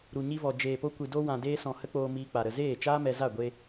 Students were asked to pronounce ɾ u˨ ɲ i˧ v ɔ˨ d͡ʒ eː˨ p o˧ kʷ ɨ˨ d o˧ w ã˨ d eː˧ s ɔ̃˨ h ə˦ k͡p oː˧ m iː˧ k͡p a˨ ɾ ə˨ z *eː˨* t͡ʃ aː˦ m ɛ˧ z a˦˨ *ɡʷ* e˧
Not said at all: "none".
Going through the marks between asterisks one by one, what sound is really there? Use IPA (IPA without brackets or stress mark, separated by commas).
eː˦˨, ɡʷ